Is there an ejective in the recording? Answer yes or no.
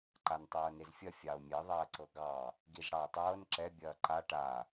no